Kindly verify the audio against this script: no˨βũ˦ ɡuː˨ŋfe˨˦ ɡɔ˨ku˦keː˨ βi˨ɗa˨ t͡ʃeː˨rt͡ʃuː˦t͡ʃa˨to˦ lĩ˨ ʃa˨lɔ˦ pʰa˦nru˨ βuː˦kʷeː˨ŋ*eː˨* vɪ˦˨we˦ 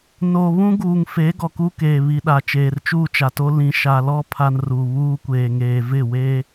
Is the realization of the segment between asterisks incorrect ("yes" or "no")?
no